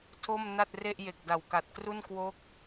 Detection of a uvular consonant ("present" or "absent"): absent